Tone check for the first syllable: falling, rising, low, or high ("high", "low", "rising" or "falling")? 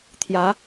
rising